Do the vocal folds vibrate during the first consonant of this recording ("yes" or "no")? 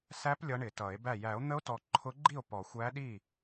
no